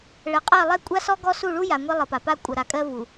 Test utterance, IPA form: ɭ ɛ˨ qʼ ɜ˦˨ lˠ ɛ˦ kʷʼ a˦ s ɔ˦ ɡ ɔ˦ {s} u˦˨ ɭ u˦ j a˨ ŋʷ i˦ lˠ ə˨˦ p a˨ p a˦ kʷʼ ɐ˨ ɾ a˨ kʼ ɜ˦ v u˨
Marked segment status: correct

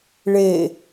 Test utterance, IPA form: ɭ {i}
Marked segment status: incorrect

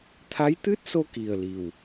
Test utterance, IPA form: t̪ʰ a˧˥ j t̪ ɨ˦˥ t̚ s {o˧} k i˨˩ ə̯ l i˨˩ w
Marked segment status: correct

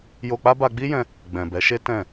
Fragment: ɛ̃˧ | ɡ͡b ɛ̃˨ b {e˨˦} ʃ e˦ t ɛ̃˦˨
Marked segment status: incorrect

